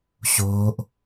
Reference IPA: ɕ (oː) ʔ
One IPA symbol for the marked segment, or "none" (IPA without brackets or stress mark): oː